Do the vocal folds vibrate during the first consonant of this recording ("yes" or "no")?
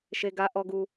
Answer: no